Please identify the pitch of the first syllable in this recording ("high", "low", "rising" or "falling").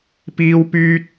high